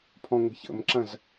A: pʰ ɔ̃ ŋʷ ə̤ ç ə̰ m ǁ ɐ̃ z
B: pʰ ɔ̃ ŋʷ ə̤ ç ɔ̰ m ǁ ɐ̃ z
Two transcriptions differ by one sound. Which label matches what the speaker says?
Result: A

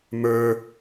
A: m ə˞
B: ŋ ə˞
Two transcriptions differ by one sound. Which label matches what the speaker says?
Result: A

